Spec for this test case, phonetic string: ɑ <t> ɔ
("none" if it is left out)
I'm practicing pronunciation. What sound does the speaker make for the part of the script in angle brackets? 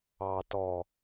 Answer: t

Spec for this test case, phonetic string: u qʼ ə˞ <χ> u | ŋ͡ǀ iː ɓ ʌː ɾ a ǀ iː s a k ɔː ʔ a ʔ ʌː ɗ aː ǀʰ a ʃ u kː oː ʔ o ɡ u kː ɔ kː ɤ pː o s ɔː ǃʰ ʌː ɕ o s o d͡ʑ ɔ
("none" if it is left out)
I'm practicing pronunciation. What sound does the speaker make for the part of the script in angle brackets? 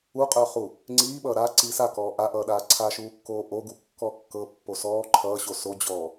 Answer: χ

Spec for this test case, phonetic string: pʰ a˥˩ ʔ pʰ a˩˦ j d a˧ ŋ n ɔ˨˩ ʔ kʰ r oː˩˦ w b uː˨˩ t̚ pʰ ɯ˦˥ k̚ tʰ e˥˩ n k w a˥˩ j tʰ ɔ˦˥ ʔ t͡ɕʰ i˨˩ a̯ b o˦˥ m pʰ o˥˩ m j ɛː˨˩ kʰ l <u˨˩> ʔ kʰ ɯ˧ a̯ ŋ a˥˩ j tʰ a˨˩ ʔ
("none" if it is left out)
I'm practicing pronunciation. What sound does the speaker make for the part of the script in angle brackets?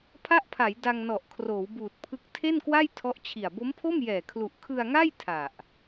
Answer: u˨˩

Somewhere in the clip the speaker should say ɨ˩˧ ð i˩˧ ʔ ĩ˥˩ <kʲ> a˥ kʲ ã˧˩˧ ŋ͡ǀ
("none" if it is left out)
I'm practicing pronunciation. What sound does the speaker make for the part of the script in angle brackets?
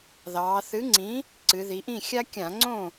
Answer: xʲ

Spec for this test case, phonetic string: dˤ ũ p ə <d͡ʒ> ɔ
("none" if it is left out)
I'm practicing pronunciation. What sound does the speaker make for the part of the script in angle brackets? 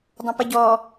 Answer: ɟ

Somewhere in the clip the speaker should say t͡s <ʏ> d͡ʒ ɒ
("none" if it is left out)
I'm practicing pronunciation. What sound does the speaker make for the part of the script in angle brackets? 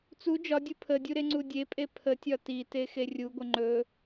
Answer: u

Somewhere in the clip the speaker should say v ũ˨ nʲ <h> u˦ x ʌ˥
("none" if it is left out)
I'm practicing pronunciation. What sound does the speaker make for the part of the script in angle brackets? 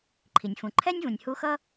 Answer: h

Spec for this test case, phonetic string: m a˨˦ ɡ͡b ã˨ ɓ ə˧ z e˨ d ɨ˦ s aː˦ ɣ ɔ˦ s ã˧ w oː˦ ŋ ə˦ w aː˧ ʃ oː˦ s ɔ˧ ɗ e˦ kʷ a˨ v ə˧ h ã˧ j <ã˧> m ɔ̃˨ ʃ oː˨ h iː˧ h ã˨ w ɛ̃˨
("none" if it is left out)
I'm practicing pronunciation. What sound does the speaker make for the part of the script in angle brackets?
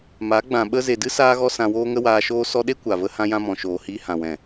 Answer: ã˧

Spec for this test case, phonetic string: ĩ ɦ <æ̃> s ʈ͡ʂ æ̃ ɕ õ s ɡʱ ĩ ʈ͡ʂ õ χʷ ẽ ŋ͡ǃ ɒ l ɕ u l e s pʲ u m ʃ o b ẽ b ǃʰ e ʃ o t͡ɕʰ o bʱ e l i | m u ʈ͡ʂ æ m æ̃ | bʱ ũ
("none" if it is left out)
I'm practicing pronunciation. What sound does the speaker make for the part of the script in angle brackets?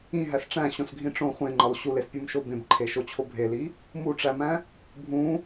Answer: æ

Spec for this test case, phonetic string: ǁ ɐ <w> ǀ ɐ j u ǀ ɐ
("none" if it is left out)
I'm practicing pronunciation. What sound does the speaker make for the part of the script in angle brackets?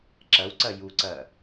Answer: w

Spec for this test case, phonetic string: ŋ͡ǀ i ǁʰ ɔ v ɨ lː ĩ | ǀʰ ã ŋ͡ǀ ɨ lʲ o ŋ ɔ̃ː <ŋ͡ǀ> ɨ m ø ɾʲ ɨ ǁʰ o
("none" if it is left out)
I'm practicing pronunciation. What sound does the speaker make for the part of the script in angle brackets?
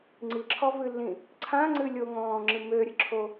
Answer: ŋ͡ǁ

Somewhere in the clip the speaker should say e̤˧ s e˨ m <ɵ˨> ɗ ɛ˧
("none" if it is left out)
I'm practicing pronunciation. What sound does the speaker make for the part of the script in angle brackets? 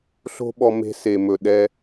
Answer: ɵ˨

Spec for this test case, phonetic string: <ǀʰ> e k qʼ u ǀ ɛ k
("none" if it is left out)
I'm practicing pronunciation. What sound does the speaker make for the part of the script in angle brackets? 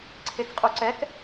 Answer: ǀʰ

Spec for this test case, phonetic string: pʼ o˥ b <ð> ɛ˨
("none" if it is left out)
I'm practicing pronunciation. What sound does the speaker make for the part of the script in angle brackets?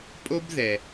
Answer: ð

